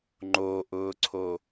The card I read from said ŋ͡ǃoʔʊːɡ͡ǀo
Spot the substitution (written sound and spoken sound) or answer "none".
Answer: ɡ͡ǀ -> ǀʰ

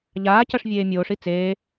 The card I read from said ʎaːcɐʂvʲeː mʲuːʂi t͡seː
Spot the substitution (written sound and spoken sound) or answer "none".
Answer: uː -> oː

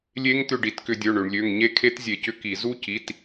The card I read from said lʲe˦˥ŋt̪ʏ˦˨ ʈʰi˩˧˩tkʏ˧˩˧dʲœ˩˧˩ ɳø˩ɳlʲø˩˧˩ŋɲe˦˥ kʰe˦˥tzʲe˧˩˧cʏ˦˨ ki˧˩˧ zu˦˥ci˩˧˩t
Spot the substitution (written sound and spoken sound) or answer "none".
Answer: ʈʰ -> ɖ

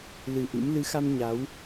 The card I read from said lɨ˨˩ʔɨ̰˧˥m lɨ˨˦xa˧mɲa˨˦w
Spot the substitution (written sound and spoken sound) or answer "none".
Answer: none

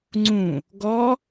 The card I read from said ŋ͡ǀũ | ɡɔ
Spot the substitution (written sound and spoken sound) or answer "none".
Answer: none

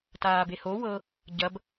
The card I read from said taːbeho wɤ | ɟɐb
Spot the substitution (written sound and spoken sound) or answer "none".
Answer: none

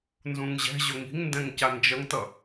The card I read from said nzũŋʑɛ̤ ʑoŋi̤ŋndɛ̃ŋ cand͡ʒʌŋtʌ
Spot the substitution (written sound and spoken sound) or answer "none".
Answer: none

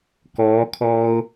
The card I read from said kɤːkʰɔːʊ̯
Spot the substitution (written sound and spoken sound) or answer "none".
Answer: ɤː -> ɔː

